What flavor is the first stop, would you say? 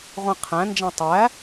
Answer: aspirated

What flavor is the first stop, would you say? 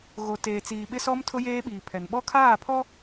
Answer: plain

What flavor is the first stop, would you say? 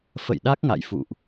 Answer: implosive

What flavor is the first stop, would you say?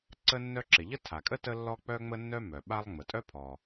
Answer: click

